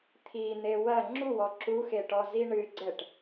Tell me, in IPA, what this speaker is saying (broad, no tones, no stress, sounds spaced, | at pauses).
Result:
t̪ʰ i n̪ e w ɐ ŋ͡ǁ u w ɔ ǁ u x e ʈ ɔ z i ɳ ɨ ɡ͡ǀ ɛ ʈ